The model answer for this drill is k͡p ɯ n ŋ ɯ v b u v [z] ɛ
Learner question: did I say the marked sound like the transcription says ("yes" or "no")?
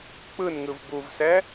no